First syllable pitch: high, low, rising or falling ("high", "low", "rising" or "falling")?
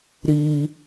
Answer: high